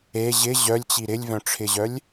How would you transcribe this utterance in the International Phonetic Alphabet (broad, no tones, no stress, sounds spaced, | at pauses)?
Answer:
e ʑ ɪ ʑ œ lʲ t͡ɕ i ɾ ɪ lʲ v œ̃ ʈ͡ʂʰ ɪ ʑ œ lʲ